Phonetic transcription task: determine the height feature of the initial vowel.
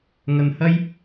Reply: low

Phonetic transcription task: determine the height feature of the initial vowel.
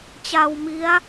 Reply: low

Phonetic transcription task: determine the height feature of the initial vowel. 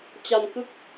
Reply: low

